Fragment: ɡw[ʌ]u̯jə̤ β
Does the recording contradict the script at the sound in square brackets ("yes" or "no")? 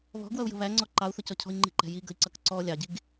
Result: no